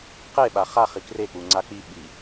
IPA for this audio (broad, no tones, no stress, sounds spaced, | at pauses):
q e ɓ a χ a χ i k r e k͡p u ŋ͡ǀ a k͡p i ɓ i